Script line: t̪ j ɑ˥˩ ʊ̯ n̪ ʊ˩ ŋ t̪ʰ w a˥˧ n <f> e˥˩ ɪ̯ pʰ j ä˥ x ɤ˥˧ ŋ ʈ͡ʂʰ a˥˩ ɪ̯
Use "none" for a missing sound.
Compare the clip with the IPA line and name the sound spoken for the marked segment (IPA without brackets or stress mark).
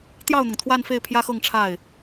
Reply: f